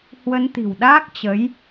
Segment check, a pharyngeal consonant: absent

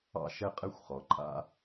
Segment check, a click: present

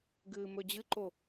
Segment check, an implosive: absent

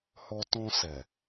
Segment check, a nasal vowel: present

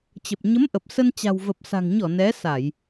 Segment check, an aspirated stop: absent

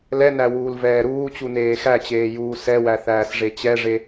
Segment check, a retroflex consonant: present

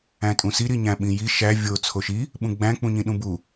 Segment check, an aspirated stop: present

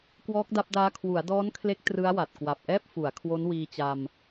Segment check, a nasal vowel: absent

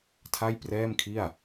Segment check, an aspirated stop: present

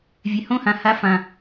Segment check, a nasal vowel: present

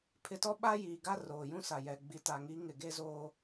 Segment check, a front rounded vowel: absent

